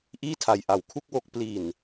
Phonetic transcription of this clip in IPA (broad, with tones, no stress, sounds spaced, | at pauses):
ʔ iː˥˩ tʰ a˨˩ j ʔ a˨˩ w kʰ u˥˩ k̚ w o˦˥ k̚ p l i˨˩ n